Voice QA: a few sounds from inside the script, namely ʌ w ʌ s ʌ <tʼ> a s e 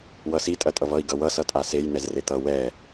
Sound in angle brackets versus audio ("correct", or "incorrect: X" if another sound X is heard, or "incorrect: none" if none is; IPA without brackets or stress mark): correct